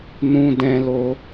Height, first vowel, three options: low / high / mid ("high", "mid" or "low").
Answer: high